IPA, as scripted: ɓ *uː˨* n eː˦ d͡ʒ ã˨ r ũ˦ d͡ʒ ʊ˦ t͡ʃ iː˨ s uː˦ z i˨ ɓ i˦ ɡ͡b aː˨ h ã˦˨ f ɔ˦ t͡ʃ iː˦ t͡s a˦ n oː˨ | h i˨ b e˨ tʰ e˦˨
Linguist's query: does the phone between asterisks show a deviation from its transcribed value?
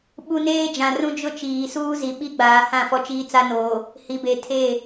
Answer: yes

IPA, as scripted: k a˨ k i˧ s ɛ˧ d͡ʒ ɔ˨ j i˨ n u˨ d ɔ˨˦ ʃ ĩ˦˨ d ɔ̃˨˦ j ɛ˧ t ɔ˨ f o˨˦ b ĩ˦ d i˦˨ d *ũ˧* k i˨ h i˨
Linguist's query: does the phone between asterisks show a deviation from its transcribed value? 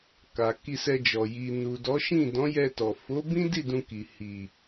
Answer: no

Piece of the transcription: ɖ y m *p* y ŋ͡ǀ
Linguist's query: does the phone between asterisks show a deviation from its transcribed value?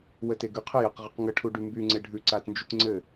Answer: yes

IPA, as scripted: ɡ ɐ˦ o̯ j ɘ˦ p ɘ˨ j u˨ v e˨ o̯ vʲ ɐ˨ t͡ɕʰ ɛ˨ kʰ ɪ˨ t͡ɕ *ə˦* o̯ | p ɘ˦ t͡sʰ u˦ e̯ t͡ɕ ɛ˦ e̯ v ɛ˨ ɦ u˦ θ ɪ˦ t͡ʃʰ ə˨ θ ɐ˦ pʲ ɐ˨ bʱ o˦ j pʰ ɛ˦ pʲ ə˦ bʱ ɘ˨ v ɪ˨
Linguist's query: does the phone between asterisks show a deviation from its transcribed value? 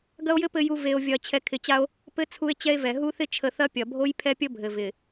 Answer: yes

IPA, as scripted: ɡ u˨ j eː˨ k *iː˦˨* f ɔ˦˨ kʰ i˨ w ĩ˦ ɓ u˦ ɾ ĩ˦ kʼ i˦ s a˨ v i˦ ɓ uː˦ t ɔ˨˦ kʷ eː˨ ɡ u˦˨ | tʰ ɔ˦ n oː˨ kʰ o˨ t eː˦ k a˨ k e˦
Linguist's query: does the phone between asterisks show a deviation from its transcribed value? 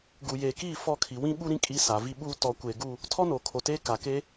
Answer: no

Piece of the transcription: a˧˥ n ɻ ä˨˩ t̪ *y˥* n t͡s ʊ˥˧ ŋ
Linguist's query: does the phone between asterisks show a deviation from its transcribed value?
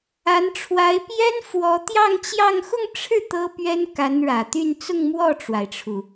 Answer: yes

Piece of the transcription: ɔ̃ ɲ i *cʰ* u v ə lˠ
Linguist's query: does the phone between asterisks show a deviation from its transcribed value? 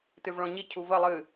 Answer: no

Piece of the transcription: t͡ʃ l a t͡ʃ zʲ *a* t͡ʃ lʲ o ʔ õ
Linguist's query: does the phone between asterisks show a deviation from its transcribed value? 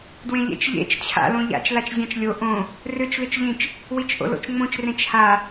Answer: yes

